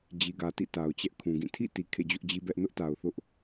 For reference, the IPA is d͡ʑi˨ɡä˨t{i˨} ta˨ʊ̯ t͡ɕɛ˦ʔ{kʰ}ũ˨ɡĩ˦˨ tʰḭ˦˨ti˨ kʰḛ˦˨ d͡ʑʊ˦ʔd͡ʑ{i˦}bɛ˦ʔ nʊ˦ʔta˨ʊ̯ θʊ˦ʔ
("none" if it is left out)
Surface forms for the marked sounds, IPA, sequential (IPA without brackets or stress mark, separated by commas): ḭ˦˨, kʰ, i˦